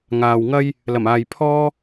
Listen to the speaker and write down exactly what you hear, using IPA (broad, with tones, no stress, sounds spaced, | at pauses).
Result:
ŋ aː˨ w ŋ ɐ˥ j | l ɐ˨˩ m aː˨ j pʰ ɔː˥